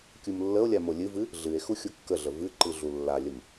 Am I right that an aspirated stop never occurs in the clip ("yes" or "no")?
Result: yes